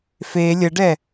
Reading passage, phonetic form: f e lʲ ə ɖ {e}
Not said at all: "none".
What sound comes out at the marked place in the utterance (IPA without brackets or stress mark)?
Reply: ɛ